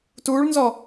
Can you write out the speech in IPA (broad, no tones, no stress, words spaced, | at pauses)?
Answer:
tuːɭnzɔ